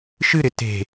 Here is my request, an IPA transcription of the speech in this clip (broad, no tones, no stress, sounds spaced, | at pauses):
ʃ ɨ ɾ ɪ t e̤